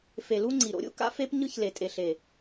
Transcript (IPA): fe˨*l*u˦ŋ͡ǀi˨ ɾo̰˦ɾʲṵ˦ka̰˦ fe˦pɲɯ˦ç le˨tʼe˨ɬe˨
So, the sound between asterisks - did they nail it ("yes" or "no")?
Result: yes